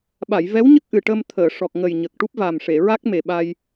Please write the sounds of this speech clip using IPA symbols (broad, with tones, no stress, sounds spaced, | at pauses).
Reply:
ɓ a˨˩˨ j v ɛ˧˥ w ɲ ə˦˥ k̚ ʔ ɨ˨˩ ʈ ə˧ m t̪ʰ əː˨˩˨ ʂ ɔ˨˩ k̚ ŋ ə˨˩ j ɲ ə˨˩ k̚ ʈ u˦˥ p̚ v a˨˩ m ʂ e˨˩˨ ɹ a˦˥ k̚ m e˨˩ ɓ a˧ j